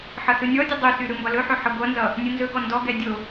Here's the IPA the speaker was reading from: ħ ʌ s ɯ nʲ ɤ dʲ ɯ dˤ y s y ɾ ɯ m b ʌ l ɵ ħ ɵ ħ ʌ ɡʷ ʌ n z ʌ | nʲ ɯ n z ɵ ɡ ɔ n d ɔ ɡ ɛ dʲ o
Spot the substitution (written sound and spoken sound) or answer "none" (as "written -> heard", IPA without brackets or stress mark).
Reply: ɤ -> ɔ